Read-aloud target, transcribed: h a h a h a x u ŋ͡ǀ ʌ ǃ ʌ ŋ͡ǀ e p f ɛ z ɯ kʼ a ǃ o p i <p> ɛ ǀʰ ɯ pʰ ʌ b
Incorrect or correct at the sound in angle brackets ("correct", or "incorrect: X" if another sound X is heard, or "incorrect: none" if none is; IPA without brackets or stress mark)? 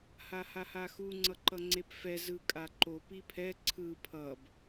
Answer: incorrect: pʰ